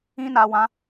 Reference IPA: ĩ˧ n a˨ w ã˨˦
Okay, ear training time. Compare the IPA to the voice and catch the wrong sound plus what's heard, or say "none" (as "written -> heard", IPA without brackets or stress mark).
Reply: none